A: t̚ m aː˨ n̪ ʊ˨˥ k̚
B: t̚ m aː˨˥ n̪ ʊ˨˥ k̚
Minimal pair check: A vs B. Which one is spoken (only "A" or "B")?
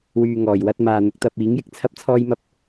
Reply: A